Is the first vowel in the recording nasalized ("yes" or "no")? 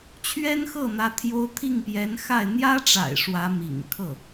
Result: no